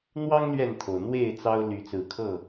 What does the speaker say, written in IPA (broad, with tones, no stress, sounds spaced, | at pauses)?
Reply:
n̪ w ɑ˦ ŋ l ɥ ɛ˥˨ n t̪ʰ o˩ ʊ̯ n̪ w e˥˨ ɪ̯ t͡s ɑ˦ ʊ̯ l y˨˦ t͡s ɹ̩˨˦ kʰ ɤ˥˨